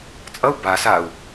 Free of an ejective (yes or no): no